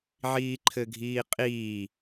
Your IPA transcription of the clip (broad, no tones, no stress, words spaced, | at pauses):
ʕiːǃʰɘɡʱiːqʼiː